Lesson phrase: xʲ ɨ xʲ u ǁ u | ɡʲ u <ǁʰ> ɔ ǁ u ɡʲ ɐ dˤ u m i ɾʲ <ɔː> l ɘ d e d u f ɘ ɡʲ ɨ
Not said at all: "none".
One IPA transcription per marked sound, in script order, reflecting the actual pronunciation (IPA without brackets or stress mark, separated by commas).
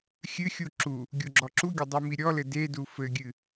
ɡ͡ǁ, ɔ